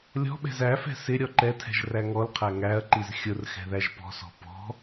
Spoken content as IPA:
lʲɔ̤ɓɛ̤z æfɛ̤ sɪ ɾʲɔǃɛtʰɛ̤ʒ ræŋɔlqʰæ ŋæɐ̯ǃiz xʲʊr xɛ̤ðæʒpɔ̤sɔ̤ pɔ̤

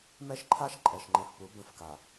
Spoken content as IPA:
mɛ˦ʃǃʰa˦ʃ ǃʼɛ˨ʃŋ͡ǃɛ̃˨f pu˨˦ bə̃˦˨fka˨

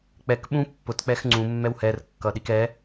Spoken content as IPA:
k͡pɛk ɓũ pːʊtk͡pɛx ŋ͡ǀũmːɛw hɛrkːʌɗik ɛ

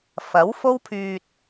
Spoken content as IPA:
fɐ˨˥wfo˥wpʰyː˧t̚

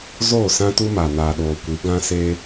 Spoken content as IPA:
zoː˦˨sã˦tu˦ma˨ naː˨ɗoː˨kʷi˨˦ ɡã˦se˦

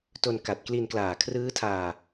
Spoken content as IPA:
to˧nka˨˩t̚kli˧n klaː˨˩kʰrɯː˦˥tʰaː˧

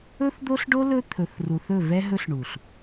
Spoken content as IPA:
ɵ˦θd̪o˦ɬɖo˦ lɵ˦t̪ʰɵ˨θru˨θɵ˦˨ vɛ˦ɦɵ˦ɬɳu˨ɬ

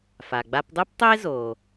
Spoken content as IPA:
fa˩ɡ͡ba˧pdˤɯ˥ptˤʊ˥ɪ̯ zo˩

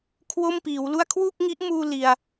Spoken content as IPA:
kʰwo˥˩mpiː˩˦wlu˥˩a̯ kʰwu˥˩k̚ŋi˦˥ʔmuː˧ li˧a̯

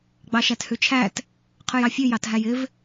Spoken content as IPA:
ɡ͡bɑʃæthʉt͡ʃʰæt | qʰʉjɑfʲʉ jɑtɦæjɪv

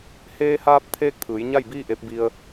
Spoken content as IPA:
heː˧haː˧p̚t̪ʰeː˧k̚ t̪ʰɯː˩˧jɲa˥˨jbiː˥˨ ʔe˧˥p̚ bi˧ə̯

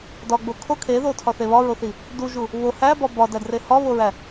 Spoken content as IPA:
dɒɡ͡bo kʰo kʰeðotʰɒθe βɒɹoθi | duʒu | βo hæbɒ bɒdædre hɒβoɹæ

